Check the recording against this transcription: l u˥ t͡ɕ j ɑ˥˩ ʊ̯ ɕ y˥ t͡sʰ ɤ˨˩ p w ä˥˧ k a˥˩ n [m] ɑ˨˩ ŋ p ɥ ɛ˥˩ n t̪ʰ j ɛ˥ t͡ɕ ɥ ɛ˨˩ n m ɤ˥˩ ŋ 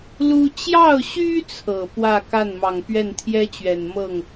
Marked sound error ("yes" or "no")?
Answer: no